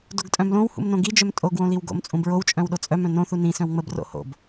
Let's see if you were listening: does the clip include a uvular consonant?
no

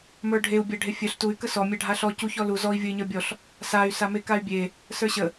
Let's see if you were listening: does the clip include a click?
no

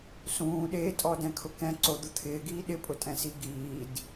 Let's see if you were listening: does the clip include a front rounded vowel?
no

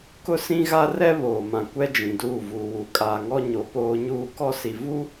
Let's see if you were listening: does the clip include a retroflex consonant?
no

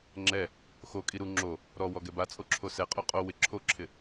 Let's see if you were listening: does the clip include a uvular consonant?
yes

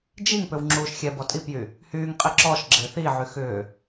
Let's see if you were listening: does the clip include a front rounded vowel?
yes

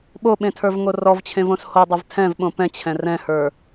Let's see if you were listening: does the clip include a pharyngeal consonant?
no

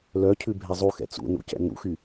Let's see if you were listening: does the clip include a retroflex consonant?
no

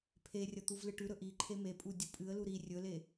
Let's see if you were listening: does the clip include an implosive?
no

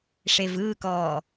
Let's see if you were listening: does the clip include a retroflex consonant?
yes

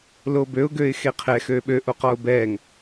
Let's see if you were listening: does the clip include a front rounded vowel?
yes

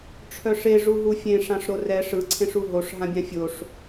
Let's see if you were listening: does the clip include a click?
yes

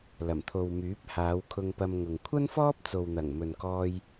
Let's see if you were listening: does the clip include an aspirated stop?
yes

